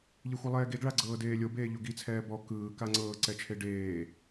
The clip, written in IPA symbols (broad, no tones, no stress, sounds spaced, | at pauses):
ʎ e xʷ ɯ lˠ ɛː ɡ e ɡ ɭ a ɡ͡ǀ ɤː d eː lʲ o b eː ʎ o ɡ i t͡sʰ ɛː b ɔ k ɯː k a ŋ͡ǀ ɤː ǀ ɛ t͡ʃʰ e ɖ eː